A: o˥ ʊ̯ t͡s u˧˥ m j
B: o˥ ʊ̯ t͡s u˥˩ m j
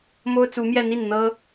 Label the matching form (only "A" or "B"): A